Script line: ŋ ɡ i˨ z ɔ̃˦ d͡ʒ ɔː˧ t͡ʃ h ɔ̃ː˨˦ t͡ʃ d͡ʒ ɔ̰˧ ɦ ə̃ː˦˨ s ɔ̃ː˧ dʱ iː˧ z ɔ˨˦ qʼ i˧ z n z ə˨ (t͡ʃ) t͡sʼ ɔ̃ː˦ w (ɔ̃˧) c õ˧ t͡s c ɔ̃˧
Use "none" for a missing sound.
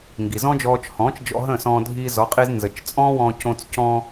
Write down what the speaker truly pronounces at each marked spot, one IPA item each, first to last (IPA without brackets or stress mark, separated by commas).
t͡ʃ, ɔ̃ː˧